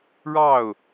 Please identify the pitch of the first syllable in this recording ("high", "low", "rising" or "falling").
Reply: falling